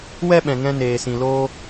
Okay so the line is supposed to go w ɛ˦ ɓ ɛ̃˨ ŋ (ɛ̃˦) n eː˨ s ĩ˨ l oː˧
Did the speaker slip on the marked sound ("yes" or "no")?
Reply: yes